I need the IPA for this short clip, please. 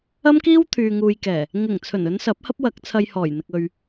ɐ˥ m k iː˥ w t̪ʰ yː˨ ŋ uː˨ j k ɛː˨˩ | ŋ ɪ˨˩ ŋ t͡sʰ ɵ˨˩ n ɵ˨˧ n s ɐ˨˥ p̚ h ɐ˥ p̚ w ɐ˨˥ k̚ t͡sʰ ɐ˧ j h ɔː˨˩ j n̪ ɪ˨ k̚ ɵ˨ ɥ

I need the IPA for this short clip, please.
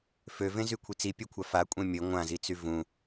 f ø v ẽ z y kʷʰ i t͡s i pʲ ø kʷʰ a f a kʷʼ ẽ mʲ ə ŋʷ ã z i t͡s y v ũ

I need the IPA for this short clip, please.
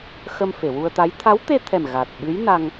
x ə˧ m f e˨˩˨ w u˧ ə̯ t̪ a˧˥ j t̪ʰ a˧˥ w t̪ e˧ t̪ʰ ɛ˨˩ m ɣ a˨˩ t̚ ɓ ɨ˧˥ j n a˧ ŋ

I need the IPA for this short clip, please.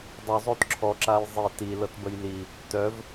dˤ œ zˤ o t ǁʰ ɔ ǁ a j zˤ i t i l ɤ t b ə j l i | t œ v

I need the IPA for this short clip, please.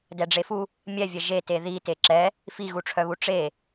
d ɛ ɖ͡ʐ e f u | mʲ ɛ vʲ ɛ ʒ e t e ð i t e ǁ ɛ | f i ɣ u ʈ͡ʂʰ œ β u ʈ͡ʂ e

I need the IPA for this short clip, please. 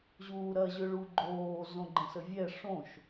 ʑ uː ɾ ɐ ʑ ø ɭ u ɡ͡ǃ oː z õ ɡ͡ǃ ə̃ s ə vʲ ɛ ʂ õ ʃ

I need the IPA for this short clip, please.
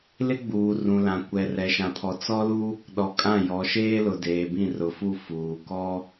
l ɪ˦ ɡ͡b uː˨ r ũ˨ l ã˨ kʷ ɛ˨ r ɛ˨ ʃ ã˨ pʰ ɔ˨ t͡s ɔ˦ l u˦ | ɗ ɔ˨ kʼ ã˦˨ j ɔ˨˦ ʃ eː˦ l ʊ˨ d eː˨ b ĩ˦˨ r ʊ˨ f u˦˨ f uː˨ k ɔ˦

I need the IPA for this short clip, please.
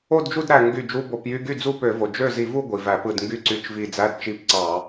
o˥˧ d d͡ʒ u˥˧ d ɾ æ˧˩ ŋ ɡ y˧˩ d͡ʒ u˧˥˧ b o˧˩˧ p j y˧˥˧ ɡ y˥˩ d͡z u˥˧ p ø˧˩˧ v o˩ d͡ʒ ø˥˩ z i˧˩˧ v u˥˧ ɡʷ i˩ v æ˧˩˧ p ɯ˧˩ d ŋ ɡ y˧˥˧ ǀ y˧˩˧ t͡ʃ v i˧˩ d͡z æ˧˥˧ d t͡ʃ i˧˥˧ p ǀ ɑ˧˩˧

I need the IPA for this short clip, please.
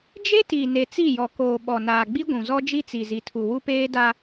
d͡ʒ e˦ t i˨ n e˨ t͡s i˦˨ j ɔ˨ k oː˨ ɓ ɔ˨ n aː˨ ɡ͡b i˦ ɡʷ ũ˨ z ɔ˦ d͡ʒ i˦ t͡s i˨ z i˨ tʰ u˨ w u˦ p eː˦ d a˦

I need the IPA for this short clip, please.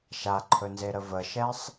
ʃ a ǃʰ ɵ n z e ɾ ə v ə ʃ ɛ sˤ

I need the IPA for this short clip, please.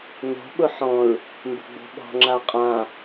n o̤ ɓ ʊ ħ ɔ̃ ɹ | m b ə̤ ɡ͡b o̤ ɓ ɔ̤ ŋ͡ǁ a qʼ ã

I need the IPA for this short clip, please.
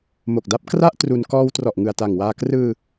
m o˨˩ k̚ d a˦˥ p̚ k r a˥˩ ʔ t r u˧ n k ɔː˧ w t r ɔ˨˩ ʔ ŋ ɯ˨˩ a̯ t a˨˩ ŋ w aː˧ k r ɯː˧

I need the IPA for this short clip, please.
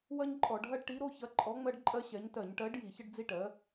w ɐ˦ ɲ ǃʼ ɔ˧˩˧ ɖ ɦ ɐ˦ ɖ ʈ i˨˥ ɾ o˨˥ ç ɐ˨˥ ǃʼ ɔ˨˥ ŋ͡m ɜ˦ ɖ ǃʼ ɜ˦ ɕ ɛ˨˥ ɲ t ɜ˧˩˧ ɲ ʈ ɜ˨˥ ɖ j i˧˩˧ ç ə˦ ɖ d͡z i˦ ʈ ɜ˨˥

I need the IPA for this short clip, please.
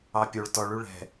ɑ pʲ o ɭ t ɔ ɭ y ɭ ɛ̤

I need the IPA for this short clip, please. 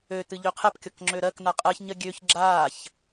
ø t ɨ ʎ ø qʰ ɛ p kʲ ɔ k ŋ͡ǁ ø ɾ ɜ k n a qʼ ɜ ç ɲ ɜ ɡʲ ø ç ɡ͡ǁ aː ç

